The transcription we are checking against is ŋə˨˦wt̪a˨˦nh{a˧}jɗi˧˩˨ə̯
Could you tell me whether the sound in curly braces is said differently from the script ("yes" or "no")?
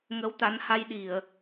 no